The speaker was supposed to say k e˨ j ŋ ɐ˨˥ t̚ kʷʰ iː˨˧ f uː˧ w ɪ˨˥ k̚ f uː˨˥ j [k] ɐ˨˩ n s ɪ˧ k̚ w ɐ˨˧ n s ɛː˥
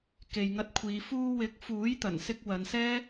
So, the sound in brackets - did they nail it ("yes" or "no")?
no